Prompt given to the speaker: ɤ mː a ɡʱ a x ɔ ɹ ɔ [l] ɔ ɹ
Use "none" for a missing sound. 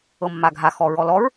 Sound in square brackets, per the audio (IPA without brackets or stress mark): l